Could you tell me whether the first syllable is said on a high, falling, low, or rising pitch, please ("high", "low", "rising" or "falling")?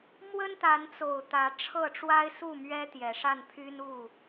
high